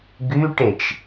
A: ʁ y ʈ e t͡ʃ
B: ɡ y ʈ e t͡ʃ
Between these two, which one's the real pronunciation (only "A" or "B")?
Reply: B